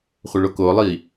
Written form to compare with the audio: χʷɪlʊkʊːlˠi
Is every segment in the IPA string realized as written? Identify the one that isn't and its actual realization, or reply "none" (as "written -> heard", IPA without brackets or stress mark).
l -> ɭ